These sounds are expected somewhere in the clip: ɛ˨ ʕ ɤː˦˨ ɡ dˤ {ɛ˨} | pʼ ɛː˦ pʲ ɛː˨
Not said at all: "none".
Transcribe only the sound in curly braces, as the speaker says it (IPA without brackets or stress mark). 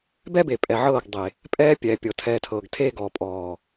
e˨